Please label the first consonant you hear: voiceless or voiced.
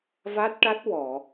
voiced